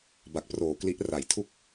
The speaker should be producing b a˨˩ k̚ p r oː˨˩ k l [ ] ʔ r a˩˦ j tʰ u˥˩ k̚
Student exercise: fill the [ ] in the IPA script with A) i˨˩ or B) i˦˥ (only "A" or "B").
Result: B